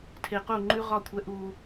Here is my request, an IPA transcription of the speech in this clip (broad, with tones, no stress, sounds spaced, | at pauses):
tʰ e˨ q u˦˨ ŋ͡ǃ ʉ˦ ʁ ɒ˦˨ kʷʰ ɛ˦ ʔ uː˦